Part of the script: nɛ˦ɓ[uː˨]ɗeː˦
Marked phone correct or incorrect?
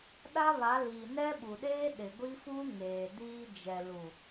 incorrect